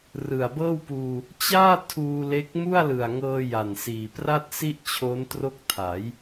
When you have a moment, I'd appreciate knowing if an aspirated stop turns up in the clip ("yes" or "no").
yes